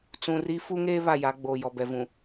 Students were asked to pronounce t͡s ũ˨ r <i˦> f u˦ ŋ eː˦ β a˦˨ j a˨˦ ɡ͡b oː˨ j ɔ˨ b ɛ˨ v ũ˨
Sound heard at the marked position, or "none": i˦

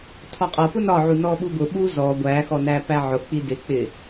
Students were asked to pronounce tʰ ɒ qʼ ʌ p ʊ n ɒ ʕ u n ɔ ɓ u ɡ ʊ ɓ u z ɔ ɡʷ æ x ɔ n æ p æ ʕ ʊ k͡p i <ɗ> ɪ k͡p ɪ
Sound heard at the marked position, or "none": d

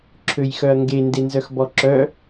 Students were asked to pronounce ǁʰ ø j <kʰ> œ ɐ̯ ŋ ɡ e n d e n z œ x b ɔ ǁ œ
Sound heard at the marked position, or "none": x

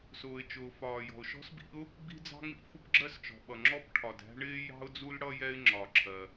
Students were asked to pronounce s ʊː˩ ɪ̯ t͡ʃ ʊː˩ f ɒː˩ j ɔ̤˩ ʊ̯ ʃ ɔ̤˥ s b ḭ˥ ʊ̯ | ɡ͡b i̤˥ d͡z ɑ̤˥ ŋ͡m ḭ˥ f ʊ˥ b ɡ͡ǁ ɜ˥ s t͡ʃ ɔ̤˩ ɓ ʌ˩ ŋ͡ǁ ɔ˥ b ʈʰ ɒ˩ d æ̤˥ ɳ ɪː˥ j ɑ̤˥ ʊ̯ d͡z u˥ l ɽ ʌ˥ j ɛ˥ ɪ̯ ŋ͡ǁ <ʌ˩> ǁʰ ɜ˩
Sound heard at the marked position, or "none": ɒ˩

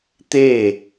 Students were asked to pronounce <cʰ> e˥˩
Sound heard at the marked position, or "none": t̪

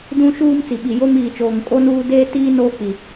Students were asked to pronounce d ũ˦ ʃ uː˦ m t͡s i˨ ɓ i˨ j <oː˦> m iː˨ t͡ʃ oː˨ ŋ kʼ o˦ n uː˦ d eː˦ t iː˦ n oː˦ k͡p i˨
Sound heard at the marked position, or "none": o˦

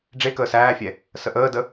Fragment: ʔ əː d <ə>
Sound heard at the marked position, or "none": ə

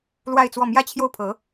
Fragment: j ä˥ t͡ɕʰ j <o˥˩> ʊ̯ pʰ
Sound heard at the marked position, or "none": o˥˩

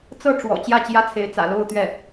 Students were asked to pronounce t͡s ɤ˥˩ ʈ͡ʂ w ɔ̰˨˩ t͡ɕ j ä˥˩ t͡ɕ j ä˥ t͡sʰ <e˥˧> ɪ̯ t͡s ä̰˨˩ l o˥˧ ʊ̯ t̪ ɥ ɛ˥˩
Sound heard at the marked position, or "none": e˧˥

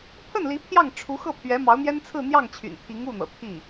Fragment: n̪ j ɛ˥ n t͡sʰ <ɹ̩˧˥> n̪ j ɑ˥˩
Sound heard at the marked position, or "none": ɹ̩˥˧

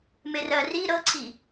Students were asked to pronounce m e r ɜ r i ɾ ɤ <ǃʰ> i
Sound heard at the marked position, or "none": ǀʰ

